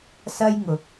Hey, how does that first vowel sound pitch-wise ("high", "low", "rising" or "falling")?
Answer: high